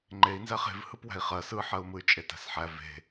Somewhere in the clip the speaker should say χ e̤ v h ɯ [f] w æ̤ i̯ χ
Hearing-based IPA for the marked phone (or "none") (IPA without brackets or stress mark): p